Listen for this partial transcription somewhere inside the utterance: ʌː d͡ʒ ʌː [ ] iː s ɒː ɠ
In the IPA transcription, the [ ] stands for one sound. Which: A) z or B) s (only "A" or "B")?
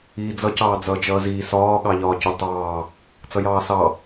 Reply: A